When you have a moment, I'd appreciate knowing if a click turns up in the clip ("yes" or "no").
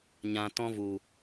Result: no